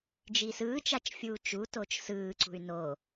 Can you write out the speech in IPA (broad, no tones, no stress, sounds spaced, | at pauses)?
d͡ʒ i s ɯː t͡ʃ a t͡ʃ fʲ uː t͡ʃ u t o t͡ʃ s ɯː ǀ ṳ y̯ n o